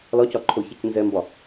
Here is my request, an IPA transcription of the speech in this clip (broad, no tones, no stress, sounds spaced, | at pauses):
l ɒ c ɒ ǃʰ o ç ɛ c n z ɛ m b ɒ